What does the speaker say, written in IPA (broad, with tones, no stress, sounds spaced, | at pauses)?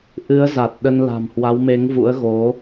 ʔ ɨ˨˦ ə̯ z a˨˩ t̚ ɗ ə˧ n l a̤˨˩ m h w a˨˦ w m e˨˦ ŋ v ṵ˧˥ ə̯ ɣ o˨˦